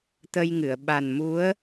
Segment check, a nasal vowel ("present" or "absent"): absent